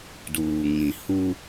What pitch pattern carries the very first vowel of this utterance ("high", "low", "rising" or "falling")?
low